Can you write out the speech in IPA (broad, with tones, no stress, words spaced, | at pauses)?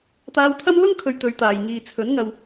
t̪aː˧wt̪ʰɐ˥m lʊ˥ŋ kʰɵ˧ɥt̪ɵ˨˧ɥt̪aː˨j ŋiː˨t͡sʰɵ˨˥nŋɐ˧w